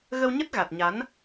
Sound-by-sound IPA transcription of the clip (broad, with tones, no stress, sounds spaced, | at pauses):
ɣ ə˧ w ɲ ə˦˥ t̚ ɣ a˨˩ t̚ ɲ a˨˦ n